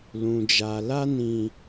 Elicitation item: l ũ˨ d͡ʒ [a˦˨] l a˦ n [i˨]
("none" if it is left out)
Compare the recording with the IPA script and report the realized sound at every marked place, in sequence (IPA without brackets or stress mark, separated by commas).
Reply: a˨, ĩ˨